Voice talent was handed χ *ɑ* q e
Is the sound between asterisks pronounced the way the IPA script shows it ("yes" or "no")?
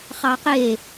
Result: yes